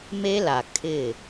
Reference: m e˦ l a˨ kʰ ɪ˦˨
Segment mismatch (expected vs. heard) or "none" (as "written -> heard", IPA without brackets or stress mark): none